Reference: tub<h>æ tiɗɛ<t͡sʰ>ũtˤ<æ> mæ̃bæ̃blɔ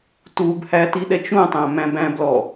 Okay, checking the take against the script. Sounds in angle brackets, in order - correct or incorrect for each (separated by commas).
correct, incorrect, incorrect